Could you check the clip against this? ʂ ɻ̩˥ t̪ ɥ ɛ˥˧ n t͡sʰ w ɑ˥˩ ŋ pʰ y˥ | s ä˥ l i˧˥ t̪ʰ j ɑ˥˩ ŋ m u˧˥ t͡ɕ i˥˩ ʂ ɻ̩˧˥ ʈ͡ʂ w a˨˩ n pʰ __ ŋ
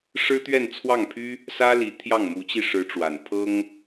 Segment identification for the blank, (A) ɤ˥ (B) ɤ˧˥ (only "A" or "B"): A